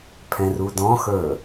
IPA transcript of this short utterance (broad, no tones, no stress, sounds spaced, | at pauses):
pʰ ɛ̃ r u d ɔ̃ x ə˞